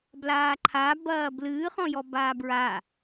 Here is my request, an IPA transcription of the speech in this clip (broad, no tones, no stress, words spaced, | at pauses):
blaːǃʰa bɐːblɨː χɔ̃jɔbaːbɹa